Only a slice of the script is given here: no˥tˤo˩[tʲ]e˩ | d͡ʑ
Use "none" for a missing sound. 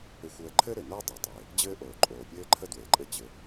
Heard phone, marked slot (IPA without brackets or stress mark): tˤ